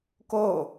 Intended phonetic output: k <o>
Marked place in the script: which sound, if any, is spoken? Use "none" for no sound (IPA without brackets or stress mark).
o